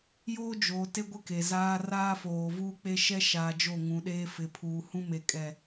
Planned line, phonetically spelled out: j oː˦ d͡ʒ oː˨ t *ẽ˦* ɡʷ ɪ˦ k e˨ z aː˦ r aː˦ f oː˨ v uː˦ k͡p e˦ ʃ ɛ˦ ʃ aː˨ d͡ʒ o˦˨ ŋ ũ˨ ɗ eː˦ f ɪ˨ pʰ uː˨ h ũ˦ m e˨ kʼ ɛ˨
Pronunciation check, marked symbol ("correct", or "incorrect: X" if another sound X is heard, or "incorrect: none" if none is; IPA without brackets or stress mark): incorrect: e˦